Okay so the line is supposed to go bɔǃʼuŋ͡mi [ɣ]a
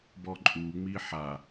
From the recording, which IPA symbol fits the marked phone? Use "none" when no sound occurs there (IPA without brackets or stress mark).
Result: ħ